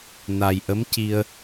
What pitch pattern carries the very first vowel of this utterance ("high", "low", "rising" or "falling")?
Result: low